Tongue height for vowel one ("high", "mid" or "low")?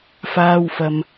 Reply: low